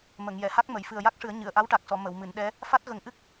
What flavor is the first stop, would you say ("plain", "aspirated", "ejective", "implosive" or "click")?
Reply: plain